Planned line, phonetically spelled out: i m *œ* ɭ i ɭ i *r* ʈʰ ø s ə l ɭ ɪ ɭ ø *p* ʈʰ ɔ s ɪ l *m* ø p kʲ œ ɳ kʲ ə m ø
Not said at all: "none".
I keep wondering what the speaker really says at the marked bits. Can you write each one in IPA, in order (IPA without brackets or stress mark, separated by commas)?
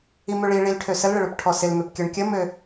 ø, l, p, m